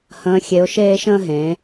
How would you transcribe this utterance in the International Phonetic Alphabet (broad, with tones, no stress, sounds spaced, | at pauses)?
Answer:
h ə̃ː˨˦ xʲ e˨˦ ʊ̯ ʃ eː˦ ʃ ə̃ː˦ ɦ ẽː˨˦